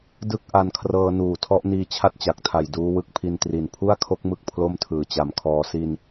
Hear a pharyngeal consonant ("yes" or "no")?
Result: no